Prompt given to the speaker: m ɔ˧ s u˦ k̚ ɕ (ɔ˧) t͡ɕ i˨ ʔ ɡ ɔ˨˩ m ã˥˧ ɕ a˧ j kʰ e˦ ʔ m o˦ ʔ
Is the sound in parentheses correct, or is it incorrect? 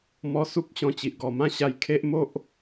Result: incorrect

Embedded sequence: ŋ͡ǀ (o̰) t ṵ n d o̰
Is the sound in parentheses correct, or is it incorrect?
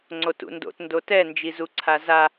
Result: incorrect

